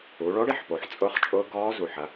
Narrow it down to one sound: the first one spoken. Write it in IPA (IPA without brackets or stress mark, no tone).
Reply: u